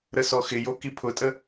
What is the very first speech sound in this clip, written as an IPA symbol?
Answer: ɾ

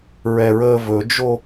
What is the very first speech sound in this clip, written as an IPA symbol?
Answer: ɹ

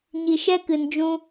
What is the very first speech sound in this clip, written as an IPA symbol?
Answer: ɲ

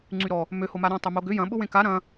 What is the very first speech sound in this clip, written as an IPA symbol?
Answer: ŋ͡ǀ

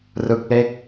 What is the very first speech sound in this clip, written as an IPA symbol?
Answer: r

